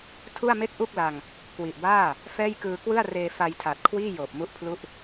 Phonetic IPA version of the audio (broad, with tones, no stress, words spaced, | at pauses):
tʰu˥˩a̯ me˥˩k̚ ʔu˥˩k̚la˧ŋ | kwi˨˩ʔbaː˥˩ | fɛː˥˩jkɯː˧ kwɯ˥˩a̯reː˧ fa˧jtʰa˨˩t̚kʰwiː˥˩ joː˨˩p̚mu˦˥ʔpʰlu˥˩ʔ